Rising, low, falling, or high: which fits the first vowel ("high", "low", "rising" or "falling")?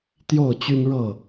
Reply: falling